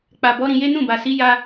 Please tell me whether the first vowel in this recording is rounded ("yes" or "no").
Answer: no